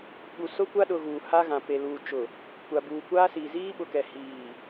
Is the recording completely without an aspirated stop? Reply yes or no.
yes